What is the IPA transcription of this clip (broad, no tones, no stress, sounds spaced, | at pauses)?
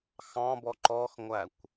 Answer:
x ɑ̃ b ɔ ǃ ɔ x ŋʷ æ kʷ